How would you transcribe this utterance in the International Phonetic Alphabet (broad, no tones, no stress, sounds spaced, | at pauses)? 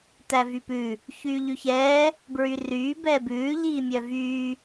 t æ v y p ʉ | ç yː ʎ y ç ɛː | b ɹ y r yː b ɛː b ʉː ʎ iː mʲ œ v yː